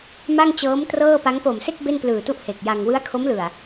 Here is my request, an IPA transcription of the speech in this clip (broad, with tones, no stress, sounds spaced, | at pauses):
m a˥˩ ŋ t͡ɕ ɤː˦˥ m t r ɤː˥˩ p a˦˥ ŋ p o˨˩ m s e˥˩ k̚ b e˥˩ n p l ɯː˨˩ t u˥˩ ʔ h e˨˩ k̚ j a˧ ŋ w ɯ˦˥ a̯ kʰ o˦˥ m l ɯ˨˩ a̯